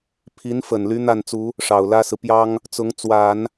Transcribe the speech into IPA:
pʰi˧˥nfə˨˩nly˧˥ n̪a˥˩nt͡su˧˥ | ʂɑ˨˩ʊ̯lä˥sɹ̩˨ pjɑ˥ŋ | t͡sʊ˧˥ŋ t͡swa˨˩˦n

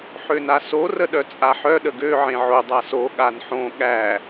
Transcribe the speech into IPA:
ħønaso rəɗœt͡sʼaħœ ɗəɡø ʕẽʕo dˤaso ɠanħõ ɠæ

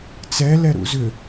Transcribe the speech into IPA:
t͡sɛlɛɾṵ zʏ

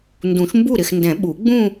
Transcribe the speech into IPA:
ndũ˨˩˦ʃmbu˥˩ɾɪ˥˩xndɛ̃˨˩˦ ɓu˨˩˦ɡ͡bũ˥˧

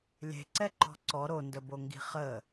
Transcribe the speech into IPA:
lʲe̤ǀɛǃɔ̤ ǀɔ ɾondəboŋɡi̤ χə

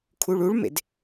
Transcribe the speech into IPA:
kʰuɭuɭmḛd

